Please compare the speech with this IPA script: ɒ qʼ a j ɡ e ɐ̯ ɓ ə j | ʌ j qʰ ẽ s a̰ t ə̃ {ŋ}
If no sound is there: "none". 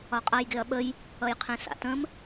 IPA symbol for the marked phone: m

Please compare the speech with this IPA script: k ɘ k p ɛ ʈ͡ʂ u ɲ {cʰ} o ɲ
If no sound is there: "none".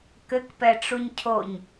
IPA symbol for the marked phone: cʰ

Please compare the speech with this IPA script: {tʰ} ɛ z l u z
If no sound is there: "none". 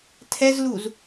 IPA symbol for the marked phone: tʰ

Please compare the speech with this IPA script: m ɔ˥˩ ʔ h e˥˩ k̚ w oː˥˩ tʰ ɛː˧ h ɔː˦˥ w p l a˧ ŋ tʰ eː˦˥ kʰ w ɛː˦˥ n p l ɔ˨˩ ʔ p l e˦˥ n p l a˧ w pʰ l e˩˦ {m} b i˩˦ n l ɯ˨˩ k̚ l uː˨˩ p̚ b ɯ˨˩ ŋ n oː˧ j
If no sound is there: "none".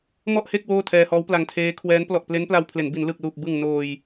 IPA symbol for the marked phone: n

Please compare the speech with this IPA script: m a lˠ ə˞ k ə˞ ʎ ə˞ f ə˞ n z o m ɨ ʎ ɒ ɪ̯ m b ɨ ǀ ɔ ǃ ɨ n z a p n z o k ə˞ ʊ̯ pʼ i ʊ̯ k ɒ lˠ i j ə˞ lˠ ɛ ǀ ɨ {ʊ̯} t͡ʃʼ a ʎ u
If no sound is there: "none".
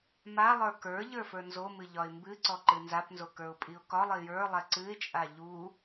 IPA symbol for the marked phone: ɪ̯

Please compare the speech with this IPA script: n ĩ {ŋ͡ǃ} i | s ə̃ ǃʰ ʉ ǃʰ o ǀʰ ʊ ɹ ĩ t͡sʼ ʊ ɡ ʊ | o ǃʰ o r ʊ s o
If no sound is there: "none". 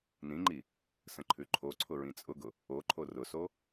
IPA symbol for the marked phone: ŋ͡ǃ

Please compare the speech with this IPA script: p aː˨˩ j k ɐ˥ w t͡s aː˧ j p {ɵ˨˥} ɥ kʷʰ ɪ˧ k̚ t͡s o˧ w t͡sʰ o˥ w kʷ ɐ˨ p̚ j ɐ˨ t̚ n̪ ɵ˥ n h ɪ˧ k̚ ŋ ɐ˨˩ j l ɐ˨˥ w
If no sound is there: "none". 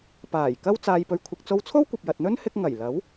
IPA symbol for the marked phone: ɵ˧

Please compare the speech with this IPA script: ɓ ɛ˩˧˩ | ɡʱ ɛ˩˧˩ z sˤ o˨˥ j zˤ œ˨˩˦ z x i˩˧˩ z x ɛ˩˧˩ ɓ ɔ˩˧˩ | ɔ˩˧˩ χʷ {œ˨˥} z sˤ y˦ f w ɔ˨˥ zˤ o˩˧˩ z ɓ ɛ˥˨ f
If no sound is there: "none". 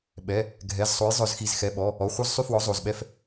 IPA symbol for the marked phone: œ˦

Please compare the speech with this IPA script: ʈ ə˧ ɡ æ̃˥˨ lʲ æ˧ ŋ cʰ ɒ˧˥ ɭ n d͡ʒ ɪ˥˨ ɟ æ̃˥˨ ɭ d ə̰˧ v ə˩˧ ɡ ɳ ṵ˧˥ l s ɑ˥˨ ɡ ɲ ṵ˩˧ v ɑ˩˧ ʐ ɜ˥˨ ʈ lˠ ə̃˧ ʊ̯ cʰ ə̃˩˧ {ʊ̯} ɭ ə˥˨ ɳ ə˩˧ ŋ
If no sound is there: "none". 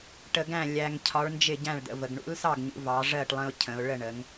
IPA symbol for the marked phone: ʊ̯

